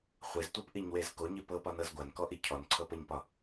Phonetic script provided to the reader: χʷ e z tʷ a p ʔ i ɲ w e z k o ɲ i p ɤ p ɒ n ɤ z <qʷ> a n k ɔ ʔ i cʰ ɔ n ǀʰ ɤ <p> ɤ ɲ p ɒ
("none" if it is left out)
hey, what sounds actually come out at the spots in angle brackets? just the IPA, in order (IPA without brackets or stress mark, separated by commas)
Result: ɡʷ, p